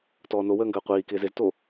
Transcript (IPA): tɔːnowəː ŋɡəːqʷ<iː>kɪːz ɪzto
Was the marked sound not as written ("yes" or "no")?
no